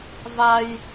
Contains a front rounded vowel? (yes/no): no